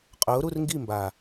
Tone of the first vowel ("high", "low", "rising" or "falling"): rising